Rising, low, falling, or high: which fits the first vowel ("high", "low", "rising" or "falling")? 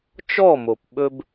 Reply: falling